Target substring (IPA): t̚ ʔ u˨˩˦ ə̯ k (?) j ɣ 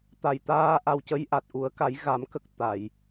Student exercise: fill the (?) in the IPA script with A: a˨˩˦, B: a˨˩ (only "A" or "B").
A